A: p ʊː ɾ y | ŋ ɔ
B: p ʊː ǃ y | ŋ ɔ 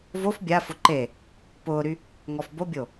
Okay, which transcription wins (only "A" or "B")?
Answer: A